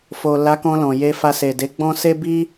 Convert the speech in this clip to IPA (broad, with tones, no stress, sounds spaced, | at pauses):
f o˨ l a˨˦ k ɔ̃˧ l ɔ̃˨ j e˧ f a˧ s e˨ d e˨˦ ɡ͡b ɔ̃˦ s e˦ b i˦